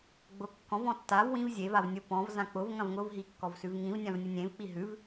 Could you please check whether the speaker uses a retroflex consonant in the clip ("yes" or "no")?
no